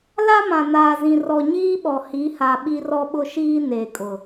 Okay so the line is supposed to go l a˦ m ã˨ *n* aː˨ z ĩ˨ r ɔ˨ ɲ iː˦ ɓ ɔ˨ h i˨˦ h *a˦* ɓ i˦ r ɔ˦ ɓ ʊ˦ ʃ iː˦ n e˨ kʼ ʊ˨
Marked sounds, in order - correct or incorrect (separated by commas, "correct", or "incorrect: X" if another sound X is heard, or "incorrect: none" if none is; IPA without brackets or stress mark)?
correct, incorrect: a˨